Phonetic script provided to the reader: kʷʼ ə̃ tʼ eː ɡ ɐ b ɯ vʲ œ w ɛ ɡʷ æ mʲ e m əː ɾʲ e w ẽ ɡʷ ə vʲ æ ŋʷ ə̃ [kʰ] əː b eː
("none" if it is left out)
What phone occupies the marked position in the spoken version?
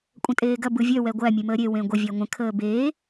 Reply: kʰ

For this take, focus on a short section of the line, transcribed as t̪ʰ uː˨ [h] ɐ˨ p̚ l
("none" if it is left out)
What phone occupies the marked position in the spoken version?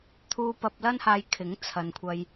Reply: p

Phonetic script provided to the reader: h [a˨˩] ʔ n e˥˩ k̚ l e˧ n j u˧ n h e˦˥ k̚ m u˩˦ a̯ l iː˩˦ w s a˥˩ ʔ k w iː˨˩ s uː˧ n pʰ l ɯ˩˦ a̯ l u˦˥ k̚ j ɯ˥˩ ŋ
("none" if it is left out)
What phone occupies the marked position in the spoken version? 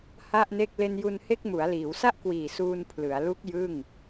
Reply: a˥˩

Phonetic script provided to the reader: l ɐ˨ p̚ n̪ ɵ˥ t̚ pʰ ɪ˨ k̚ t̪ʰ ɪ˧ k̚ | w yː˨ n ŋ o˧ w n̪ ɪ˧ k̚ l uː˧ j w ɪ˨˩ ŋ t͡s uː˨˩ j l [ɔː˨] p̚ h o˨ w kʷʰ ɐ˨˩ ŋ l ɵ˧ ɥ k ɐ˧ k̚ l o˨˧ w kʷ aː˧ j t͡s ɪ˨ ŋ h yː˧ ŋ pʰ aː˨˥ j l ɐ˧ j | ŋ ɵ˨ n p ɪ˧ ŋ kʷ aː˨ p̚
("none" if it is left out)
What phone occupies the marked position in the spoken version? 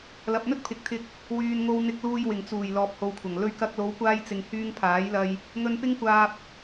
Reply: ɔː˨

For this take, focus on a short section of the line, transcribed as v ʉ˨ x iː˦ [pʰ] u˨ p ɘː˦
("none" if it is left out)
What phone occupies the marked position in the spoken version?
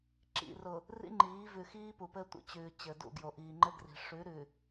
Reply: p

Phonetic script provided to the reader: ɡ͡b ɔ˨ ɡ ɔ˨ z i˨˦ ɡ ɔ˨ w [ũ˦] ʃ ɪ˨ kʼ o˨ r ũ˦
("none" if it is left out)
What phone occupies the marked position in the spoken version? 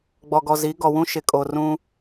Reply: ũ˦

